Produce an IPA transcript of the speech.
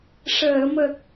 ʂ əː˨˩˨ m ə˨˩ k̚

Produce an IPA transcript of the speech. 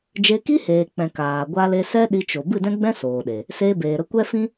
d͡ʒ e˧ k i˦ h eː˨ k͡p ɛ̃˨ k aː˨ ɡʷ a˧ l e˧ s ɛ˦ ɗ i˧ t͡ʃ o˨ b ɨ˦˨ d ɛ̃˦ ɡ͡b ɛ̃˦ s oː˨ ɗ e˨ | s eː˧ b eː˨ ɾ ə˧ kʷ ɛ˦ f ĩ˦

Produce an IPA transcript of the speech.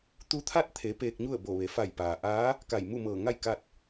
t̪ u˧˥ t̪ʰ a˥˨ t̚ t̪ʰ e˩˧ p eː˧ k̚ ɲ u˥˨ ə̯ b o˧˩ ʋ e˩˧ f a˧˩ j p aː˩ ʔ aː˧˥ | k a˧˩ j m u˥˨ m ɤː˧˩ ŋ a˥˨ j k a˥˨ t̚

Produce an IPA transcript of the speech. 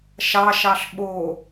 ʃ ɑ ʃ ɑ ɬ ɓ o

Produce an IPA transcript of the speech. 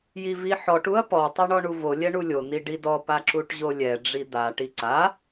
j i v i ħ ɔ ʈ u ɐ̯ p ɔ tˤ ɛ ɳ ɔ ɳ u v o lʲ ɛ ɳ u lʲ o n̪ i ɖ i d ɔ p a ǁ u ʈ ʑ o lʲ ɛ ɖ͡ʐ i d̪ a ʈ i ǀ a

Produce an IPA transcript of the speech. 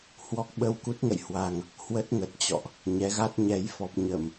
h w ɔ˦˥ k̚ ɓ ə˧ w k u˦˥ t̚ ŋ ə̰˧˨ j h w a˨˩ ŋ | h w ə˦˥ t̚ ŋ ə˨˩ t̚ t͡ɕ ɔ̰˧˨ ʔ | ɲ ɛ˨˦ ɣ a˦˥ t̚ ɲ ɛ˨˦ j f ɔ˨˩ p̚ ɲ ə˧˩˨ m

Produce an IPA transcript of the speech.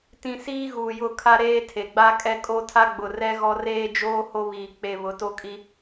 t ĩ˦ s iː˦ ɣ uː˨ j ʊ˦˨ kʰ a˦ ɾ eː˦ tʰ e˨ ɡ͡b a˦ kʼ ɛ˦ kʼ o˦ tʰ a˦ ɡ͡b ʊ˨ r ɛ˦ ɣ ɔ˦ r eː˦ d͡ʒ oː˦ h o˦ β iː˨ k͡p e˨ β ʊ˨˦ t o˦ kʼ i˦

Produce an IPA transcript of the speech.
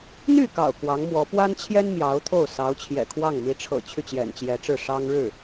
n̪ y˥˩ k ɑ̰˨˩ ʊ̯ k w ɑ˧˥ ŋ m w ɔ˧˥ p w a˥ n t͡ɕʰ j ɛ˥ n m j ɑ˧˥ ʊ̯ t̪ʰ o˥˩ ʊ̯ s ɑ˧˥ ʊ̯ t͡ɕʰ j ɛ̰˨˩ kʰ w ɑ˥˩ ŋ m i˧˥ ʈ͡ʂʰ ɤ̰˨˩ t͡ɕʰ y˥˩ t͡ɕ j ɛ̰˨˩ n t͡ɕ j ɛ˧˥ ʈ͡ʂ ɻ̩˥˩ ʂ ɑ˥ ŋ ɻ ɻ̩˥˩

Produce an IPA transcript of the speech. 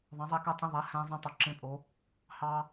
ðˤ ɑ̃˨˦ zˤ æ˦ k ɑ˦ tʼ ẽ˦ ðˤ æ˨˦ h æ̃˦ zˤ ẽ˦ tˤ o˨˦ ǁ ẽ˦ pʼ o˨˦ | h ɑ˦

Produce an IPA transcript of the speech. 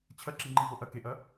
t͡ɕʰ ɐ ǁ i ŋ͡ǃ i v o ʔ ɐ k e ʔ ɐ

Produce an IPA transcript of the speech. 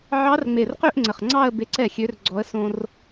ʕ ɑ˧˥ r ŋ͡m e˧˩ r q ø˥˧ ʔ ŋ͡ǀ ə˧˩ χ ŋ͡ǀ ɑ˥˧ ə̯ b e˧˥ ǀ ɛ˥˩ xʲ ø˧˥ r ɡ͡ǀ ɔ˧˥ ə̯ s õ˥ r

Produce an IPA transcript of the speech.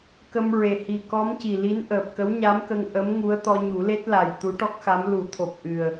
k ə˧ m ɹ e˨˩ h i˨˩ k ɔ˧˥ m c i˨˩ l i˧˥ n ʔ əː˨˩ p̚ k ə˧˥ w ɲ a˧˥ m k ə˧ ŋ ʔ ə˧˥ m ŋ u˧˥ ə̯ t̪ ɔ˧ ɲ u˨˩˦ l e˦˥ t̚ l a˨˩ j t̪ u˧˥ ʈ ɔ˦˥ k̚ x a˧˥ m l u˨˩˦ t̪ʰ o˨˩ p̚ ʔ ɨ˨˩ ə̯

